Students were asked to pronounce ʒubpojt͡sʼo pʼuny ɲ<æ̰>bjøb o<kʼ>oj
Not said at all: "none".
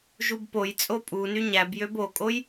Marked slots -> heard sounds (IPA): æ, kʼ

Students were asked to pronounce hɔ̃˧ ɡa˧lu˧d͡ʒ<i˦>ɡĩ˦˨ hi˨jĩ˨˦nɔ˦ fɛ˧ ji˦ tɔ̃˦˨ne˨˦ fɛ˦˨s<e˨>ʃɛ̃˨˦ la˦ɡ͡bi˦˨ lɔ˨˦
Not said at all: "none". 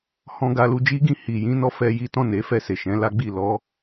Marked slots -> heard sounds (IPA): i˦, e˨

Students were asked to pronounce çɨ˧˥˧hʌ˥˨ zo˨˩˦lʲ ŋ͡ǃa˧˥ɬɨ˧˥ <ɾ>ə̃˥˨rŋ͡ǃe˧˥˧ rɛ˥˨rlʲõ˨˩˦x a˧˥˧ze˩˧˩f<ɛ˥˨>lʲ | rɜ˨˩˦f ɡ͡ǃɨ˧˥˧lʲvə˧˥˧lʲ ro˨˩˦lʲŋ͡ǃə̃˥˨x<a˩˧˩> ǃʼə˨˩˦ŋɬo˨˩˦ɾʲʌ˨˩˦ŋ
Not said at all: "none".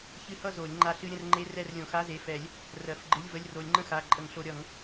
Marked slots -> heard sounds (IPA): ɾʲ, ɛ˨˩˦, a˩˧˩

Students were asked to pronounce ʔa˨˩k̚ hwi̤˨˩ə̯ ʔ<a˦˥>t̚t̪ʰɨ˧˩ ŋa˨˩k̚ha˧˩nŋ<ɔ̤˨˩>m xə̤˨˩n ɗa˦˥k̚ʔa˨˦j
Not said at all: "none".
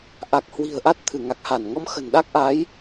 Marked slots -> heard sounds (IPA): a˦˥, ɔ˧

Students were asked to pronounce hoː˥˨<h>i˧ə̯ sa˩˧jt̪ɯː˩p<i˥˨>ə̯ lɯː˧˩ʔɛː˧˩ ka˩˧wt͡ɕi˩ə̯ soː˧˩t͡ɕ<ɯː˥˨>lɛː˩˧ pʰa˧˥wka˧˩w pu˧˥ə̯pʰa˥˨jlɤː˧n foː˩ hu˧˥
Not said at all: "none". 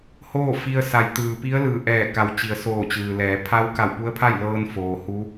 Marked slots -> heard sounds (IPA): f, i˧˥, ɯː˩

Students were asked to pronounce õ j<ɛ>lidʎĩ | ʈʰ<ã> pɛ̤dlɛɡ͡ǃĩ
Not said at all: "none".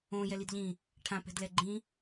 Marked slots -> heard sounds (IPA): ɛ, ã

